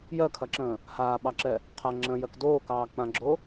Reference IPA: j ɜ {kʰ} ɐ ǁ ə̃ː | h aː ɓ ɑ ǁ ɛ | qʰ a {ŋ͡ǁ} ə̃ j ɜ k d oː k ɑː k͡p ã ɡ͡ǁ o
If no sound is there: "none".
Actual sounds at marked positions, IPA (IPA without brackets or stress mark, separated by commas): kʰ, ŋ͡ǁ